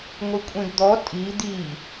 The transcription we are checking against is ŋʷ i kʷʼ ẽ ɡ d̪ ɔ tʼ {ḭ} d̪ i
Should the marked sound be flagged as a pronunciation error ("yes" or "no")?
yes